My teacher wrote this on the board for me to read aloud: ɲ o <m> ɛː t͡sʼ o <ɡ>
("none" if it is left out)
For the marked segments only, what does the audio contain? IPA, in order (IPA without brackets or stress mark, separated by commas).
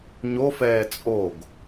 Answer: f, ɡ